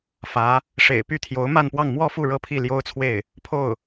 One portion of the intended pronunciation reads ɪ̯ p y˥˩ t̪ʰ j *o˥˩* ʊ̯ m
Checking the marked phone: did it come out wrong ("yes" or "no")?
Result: yes